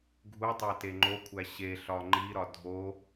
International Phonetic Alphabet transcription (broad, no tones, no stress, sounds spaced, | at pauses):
ɡʱ u tˤ æ t e ŋ͡ǃ o kʷʰ æ ɕ e ɬ ɒ ŋ͡ǃ i ɾ ɒ dʱ o